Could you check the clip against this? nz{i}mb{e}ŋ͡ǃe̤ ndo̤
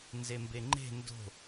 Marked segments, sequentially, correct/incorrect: incorrect, correct

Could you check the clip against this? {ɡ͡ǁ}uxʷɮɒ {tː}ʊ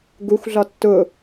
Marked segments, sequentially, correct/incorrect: incorrect, correct

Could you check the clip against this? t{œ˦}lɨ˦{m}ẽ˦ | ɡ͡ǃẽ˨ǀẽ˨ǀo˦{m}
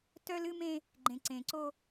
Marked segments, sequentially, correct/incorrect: correct, correct, incorrect

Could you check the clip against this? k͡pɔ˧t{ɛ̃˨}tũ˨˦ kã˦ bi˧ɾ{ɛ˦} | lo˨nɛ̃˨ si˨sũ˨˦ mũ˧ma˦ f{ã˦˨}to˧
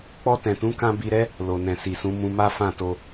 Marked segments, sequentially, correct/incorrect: correct, correct, correct

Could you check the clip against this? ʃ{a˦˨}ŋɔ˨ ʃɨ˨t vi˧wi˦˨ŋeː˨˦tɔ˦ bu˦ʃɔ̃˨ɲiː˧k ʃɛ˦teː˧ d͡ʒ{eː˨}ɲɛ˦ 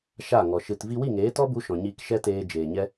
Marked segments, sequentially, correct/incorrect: correct, correct

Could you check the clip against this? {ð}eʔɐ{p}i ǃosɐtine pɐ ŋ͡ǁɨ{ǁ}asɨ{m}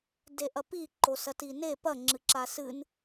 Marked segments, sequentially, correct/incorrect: incorrect, correct, correct, incorrect

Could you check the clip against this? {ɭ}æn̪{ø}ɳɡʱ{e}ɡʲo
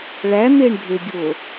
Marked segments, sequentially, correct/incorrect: correct, incorrect, correct

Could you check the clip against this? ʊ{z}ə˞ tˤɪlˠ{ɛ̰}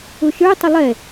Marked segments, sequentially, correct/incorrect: incorrect, incorrect

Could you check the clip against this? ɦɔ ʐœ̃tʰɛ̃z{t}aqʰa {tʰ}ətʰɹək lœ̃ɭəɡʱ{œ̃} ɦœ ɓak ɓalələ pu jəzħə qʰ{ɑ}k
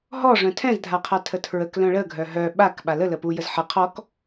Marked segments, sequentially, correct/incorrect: incorrect, correct, incorrect, incorrect

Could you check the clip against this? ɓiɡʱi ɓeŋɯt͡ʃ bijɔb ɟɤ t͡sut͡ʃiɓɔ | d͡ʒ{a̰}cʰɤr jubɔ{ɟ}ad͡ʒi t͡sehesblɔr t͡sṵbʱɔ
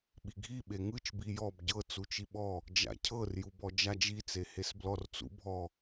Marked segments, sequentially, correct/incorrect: correct, incorrect

